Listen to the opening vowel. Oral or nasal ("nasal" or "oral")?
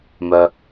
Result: oral